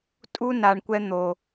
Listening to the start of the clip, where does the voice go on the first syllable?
high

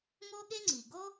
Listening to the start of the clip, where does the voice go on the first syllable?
high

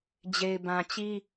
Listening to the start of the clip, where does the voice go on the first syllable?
low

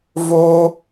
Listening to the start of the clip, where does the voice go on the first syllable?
high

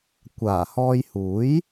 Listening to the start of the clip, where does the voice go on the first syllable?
low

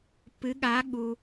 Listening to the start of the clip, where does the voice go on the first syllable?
rising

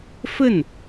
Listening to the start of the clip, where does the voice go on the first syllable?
falling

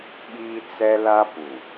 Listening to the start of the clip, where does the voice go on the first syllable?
high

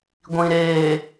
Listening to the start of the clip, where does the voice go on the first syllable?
low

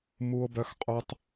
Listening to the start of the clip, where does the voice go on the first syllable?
low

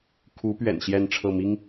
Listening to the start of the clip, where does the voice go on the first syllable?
rising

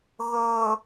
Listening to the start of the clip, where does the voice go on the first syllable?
low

